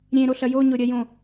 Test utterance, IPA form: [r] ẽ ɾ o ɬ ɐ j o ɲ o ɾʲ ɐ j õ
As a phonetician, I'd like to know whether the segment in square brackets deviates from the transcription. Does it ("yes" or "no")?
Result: yes